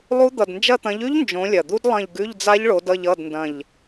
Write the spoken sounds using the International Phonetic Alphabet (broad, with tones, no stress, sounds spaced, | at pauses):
lˠ u˦˥ d̪ ʌ˨˩ d n d͡ʒ ɐ˦˨ t̪ ɐ̃˨˦ ʎ ʉ˦˥ ʎ n d͡ʒ õ˨˦ lʲ ɐ˨˩ d̪ u˦˥ d lˠ ɐ̃˦˨ ʎ ɡ ʉ˧˥˧ ʎ d͡z a˦˥ ʎ ɭ o˨˦ d ʌ˦˨ ʎ ʌ˧˥˧ d n d ɐ̃˦˨ ʎ